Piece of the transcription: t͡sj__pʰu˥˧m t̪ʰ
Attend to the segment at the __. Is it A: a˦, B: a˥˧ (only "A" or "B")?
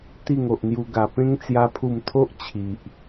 A